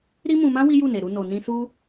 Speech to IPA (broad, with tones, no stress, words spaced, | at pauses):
ɾi˦mũ˧mã˦ wi˦ju˦˨ne˨ɾu˧ no˨nĩ˧su˦